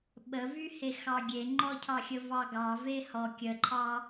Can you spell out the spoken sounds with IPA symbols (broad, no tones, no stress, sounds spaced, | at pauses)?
ɓ ə v y h e x ɑ ɡʲ e ŋ͡ǃ ɔ cʰ ɑ xʲ ə v ɑ ɡ ɑ v e h ɔ kʲ ə ǃʰ ɑ